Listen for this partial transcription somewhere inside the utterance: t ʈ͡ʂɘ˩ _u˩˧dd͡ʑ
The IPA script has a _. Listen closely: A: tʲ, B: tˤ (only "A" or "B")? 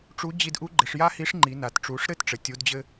A